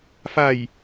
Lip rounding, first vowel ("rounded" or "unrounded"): unrounded